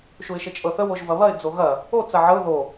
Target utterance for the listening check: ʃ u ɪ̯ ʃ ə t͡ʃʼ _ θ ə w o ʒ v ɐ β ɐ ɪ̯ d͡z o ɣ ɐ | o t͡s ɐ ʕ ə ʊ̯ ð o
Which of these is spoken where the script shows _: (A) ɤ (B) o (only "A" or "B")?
A